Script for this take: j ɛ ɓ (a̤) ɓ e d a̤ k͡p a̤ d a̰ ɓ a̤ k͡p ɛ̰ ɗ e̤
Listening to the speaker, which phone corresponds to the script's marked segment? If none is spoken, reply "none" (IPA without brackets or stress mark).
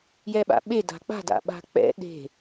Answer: a̰